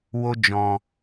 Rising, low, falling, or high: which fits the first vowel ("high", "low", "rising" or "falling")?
high